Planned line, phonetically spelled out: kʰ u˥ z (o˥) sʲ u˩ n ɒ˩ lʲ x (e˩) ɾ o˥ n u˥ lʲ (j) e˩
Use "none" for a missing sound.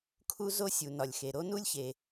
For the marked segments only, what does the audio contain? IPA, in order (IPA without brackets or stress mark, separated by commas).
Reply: o˥, e˩, ç